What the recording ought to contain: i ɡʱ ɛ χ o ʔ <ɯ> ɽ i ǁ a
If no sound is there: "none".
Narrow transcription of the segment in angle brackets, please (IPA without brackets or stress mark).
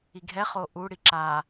u